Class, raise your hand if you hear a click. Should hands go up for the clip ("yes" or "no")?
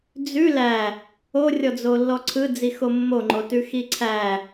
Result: yes